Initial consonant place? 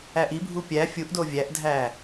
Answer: glottal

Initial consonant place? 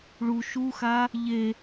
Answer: retroflex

